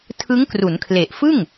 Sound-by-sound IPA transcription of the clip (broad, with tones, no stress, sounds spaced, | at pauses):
tʰ ɯ˦˥ ŋ k r u˩˦ n kʰ l e˨˩ ʔ f ɯ˥˩ ŋ